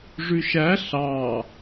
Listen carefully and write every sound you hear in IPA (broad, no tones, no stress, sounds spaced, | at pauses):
ʐ ʉ ʃ æ ɬ ɑ